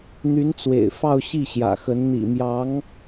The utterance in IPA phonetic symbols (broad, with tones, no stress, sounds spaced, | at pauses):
n̪ y˧˥ n t͡s w ḛ˨˩ ɪ̯ f ɑ˥˧ ʊ̯ ɕ i˥˩ ɕ j ä̰˨˩ x ə˧˥ n n̪ ḭ˨˩ m j ɑ˧˥ ŋ